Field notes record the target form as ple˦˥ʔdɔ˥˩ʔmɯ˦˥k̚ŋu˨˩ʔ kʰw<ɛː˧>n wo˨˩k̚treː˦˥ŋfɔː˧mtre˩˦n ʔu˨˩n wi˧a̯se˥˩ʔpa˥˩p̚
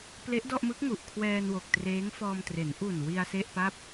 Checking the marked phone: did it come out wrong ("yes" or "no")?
no